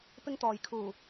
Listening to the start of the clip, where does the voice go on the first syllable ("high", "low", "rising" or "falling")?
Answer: high